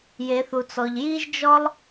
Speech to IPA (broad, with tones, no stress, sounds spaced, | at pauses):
j e˩˧ θ u˩ t͡s ɔ˩ ʎ j i˧ ʒ d͡ʒ ɔ˧ lˠ